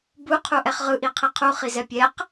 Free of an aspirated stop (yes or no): no